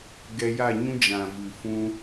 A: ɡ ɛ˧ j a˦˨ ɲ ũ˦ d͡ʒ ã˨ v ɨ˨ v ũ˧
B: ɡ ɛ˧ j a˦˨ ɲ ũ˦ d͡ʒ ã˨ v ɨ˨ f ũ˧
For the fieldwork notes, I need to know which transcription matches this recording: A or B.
B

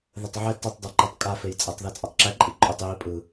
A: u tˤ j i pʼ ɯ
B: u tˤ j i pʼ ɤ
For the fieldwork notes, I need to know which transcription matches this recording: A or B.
A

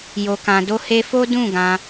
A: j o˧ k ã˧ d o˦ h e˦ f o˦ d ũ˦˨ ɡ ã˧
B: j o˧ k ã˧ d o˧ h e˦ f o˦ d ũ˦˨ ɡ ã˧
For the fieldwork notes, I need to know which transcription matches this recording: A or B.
A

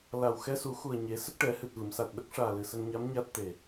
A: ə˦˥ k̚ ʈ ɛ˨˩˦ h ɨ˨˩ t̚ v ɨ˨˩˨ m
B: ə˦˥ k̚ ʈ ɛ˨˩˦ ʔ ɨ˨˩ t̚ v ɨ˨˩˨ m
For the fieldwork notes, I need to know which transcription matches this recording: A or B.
A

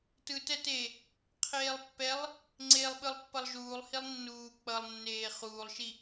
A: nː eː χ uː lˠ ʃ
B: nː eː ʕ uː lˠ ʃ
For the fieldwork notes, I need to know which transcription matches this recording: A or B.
A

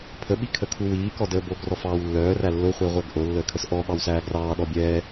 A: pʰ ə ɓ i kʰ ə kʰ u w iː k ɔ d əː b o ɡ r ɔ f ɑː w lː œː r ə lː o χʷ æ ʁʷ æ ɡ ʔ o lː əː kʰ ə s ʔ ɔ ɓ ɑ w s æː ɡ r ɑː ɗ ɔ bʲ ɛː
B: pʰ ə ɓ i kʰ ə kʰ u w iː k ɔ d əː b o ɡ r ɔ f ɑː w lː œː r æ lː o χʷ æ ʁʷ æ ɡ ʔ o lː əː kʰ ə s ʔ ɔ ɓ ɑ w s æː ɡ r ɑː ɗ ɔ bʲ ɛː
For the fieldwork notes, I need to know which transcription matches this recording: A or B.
B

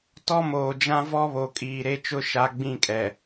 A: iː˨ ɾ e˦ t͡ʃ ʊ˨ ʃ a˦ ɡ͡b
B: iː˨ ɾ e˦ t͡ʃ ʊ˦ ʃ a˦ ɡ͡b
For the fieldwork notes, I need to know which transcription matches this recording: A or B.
B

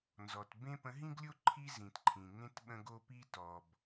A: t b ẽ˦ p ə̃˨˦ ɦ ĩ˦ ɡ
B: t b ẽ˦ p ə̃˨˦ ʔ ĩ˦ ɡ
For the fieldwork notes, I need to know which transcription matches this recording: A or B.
A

